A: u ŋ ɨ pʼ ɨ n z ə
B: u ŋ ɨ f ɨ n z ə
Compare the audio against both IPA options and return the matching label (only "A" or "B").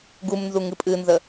A